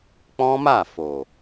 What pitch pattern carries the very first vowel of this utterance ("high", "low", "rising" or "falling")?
high